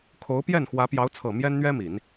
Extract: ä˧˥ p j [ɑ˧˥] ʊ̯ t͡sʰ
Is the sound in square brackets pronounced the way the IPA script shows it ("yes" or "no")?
yes